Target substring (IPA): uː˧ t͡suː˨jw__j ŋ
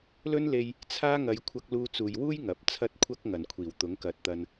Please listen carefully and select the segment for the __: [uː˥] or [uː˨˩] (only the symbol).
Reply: uː˥